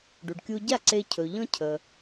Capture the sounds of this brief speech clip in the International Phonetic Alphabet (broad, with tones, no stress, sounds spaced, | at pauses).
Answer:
ɖ u˩ ɖ kʲ u˧ ɟ a˥˩ ǀ e˧ cʰ ɵ˩ ʎ ɔ̃˧ cʰ ə˩